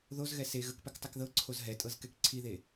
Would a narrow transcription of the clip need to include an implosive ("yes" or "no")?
no